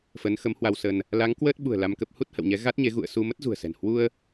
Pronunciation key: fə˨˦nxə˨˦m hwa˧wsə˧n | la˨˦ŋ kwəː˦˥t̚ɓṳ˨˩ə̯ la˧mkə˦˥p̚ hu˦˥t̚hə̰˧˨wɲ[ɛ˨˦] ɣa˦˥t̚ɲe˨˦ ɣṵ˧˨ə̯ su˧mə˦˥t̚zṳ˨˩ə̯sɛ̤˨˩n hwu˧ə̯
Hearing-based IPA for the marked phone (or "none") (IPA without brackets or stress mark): ɛ˨˦